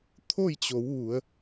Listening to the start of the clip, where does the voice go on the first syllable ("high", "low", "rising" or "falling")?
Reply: falling